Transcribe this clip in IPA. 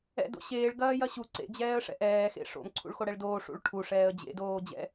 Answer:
ɛ̰do̰ ɕeːɭɡɐːjɐ ɕu ǀḛd͡ʑɛːə̯ʂɛ̰ ʔɛːxḛ ʂo̰mǀʰṵɭxoɽɛɭ doːʂṵɭ ʈʰuʂɛːə̯ d͡ʑḛdoː d͡ʑɛ̰

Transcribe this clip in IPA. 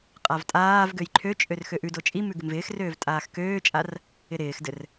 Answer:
qʼavtʼaːvɡøj ǃʰøt͡ʃʼør xøʔʉdo t͡ʃʼi mʉɡɪmvɪːxrøːv tʼaːxkøːt͡ʃʼar | ɪɾɪːxdɘr

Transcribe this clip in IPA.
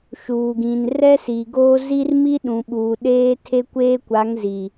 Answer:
ʃuː˨ɡĩ˨n rɛ˦si˨ ɡoː˦ zi˦r mi˦ɗũ˨ɓuː˨ ɗeː˦ tʰe˦kʷeː˦kʷa˨˦ŋ zi˨

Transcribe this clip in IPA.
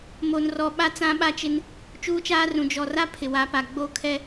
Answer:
mo˨nrɔ˨ɓa˦ t͡sã˦ɓa˦t͡ʃɪ˦n | t͡ʃuː˦t͡ʃaː˦rũ˨ d͡ʒɔ˨ra˦ pʰɪ˨wa˨˦pa˨ɡ͡boː˦ kʰɛ˦

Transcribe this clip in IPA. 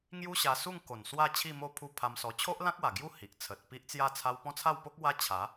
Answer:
ŋju˦ɕa˧su˥˧ŋ ko˨˩nswa˥˧ t͡ɕʰi˥˧mo˥˧pʰu˦ pʰa˧msɔ˧ t͡ɕʰo˦ʔlã˦k̚wa˨˩ɡju˦ hi˨ʔt͡sʰə˨t̚ pi˦ʔt͡sja˥˧t͡sʰa˦w pɔ̃˦t͡sʰa˥˧wpo˦k̚ wa˦t͡ɕʰa˨˦

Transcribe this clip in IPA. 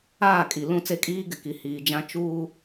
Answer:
aː˦˨kʼi˨ lũ˦˨t͡se˦kʼiː˦ɡɪ˨ ki˨hiː˨ d͡ʒã˦ t͡ʃuː˦

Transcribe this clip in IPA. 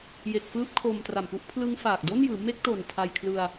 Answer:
je˨˩k̚fɯː˦˥p̚ kʰo˧mtra˨˩mpu˦˥ʔ pʰlɯ˦˥ŋfaː˨˩k̚ do˥˩njɯː˩˦ me˥˩k̚to˨˩n tʰa˧jkʰlɯ˧a̯

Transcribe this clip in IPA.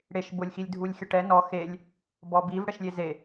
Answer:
ɽeʃ bʊlʲxilʲ dʱulʲxʲʊʈɛ nɔ xelʲ | bɔbiv ɽɛʃlʲeze

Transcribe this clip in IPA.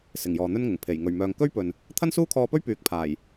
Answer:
sɪ˨˩ŋjɔː˨n̪ɵ˥nŋʊ˨˩ŋ pʰe˨˩j ŋɵ˨˩ɥmœː˨ŋ kɵ˥ɥpɵ˨n | t̪ʰɐ˥nsuː˥kʰɔː˧pɵ˥ɥ pyː˨˥k̚pʰaː˨˩j

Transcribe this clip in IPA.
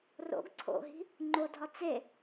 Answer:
ro̰ɡ ǀʰo̰ɦi̤ | ŋ͡ǃodʱɒ t͡se

